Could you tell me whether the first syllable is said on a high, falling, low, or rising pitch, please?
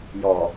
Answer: low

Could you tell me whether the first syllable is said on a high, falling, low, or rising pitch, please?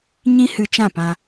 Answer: high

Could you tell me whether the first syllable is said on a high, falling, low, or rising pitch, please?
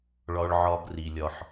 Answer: high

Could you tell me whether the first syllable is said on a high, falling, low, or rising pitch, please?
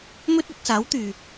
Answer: high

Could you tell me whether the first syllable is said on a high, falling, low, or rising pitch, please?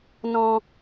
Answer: high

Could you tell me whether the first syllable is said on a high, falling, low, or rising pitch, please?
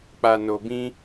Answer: low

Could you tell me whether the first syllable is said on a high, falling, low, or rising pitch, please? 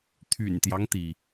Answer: low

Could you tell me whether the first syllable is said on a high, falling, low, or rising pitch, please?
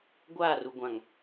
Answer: falling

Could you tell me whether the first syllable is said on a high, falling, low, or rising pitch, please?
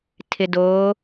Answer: low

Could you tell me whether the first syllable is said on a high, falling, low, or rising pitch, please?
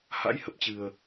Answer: rising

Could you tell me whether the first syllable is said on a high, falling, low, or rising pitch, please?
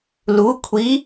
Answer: rising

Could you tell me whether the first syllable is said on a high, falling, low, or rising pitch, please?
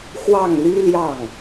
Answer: falling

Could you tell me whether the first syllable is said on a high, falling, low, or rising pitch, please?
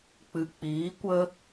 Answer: low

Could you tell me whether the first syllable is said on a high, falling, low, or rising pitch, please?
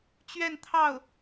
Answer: falling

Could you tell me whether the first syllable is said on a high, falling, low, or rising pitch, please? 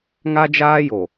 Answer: high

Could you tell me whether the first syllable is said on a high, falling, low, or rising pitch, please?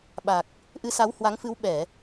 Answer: low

